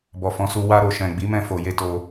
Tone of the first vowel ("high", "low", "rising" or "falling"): low